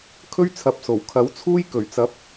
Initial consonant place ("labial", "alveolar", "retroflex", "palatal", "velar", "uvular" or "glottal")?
velar